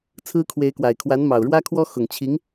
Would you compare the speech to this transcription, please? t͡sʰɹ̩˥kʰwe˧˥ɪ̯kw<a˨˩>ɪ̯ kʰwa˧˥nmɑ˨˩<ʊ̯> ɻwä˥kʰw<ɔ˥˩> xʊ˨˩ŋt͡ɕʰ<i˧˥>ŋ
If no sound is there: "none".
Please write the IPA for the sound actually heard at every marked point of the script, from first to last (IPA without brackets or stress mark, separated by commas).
a˨˩, ʊ̯, ɔ˥, i˧˥